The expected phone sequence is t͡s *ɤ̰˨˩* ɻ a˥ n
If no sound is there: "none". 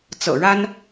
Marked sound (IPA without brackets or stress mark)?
ɤ̰˨˩